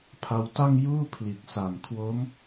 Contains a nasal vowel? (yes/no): no